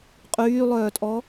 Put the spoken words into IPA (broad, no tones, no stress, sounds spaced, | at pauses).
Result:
qʼ yː lˠ œː tʼ ɔ